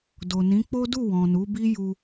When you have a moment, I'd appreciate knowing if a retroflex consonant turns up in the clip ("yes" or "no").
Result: no